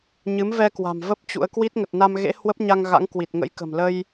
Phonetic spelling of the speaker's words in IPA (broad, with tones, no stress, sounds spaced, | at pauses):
ɲ ɨ˨˦ m v ɛ˧ k w a̤˨˩ m v ə˦˥ p̚ t͡ɕ ṵ˧˥ ə̯ k w i˦˥ t̚ ŋ ə˨˩ t̚ n a˧ m ɣ ḛ˧˥ h w ə˦˥ p̚ ɲ a˧ ŋ ɣ a̰˧˥ ŋ k w i˨˩ t̚ ŋ ə̰˧˥ j k ə̤˨˩ m l ə˧ j